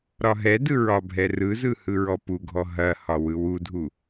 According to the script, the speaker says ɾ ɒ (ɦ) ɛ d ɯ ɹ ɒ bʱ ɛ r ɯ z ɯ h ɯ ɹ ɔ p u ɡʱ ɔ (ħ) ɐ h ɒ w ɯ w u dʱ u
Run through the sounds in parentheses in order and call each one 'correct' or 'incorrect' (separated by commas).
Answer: correct, incorrect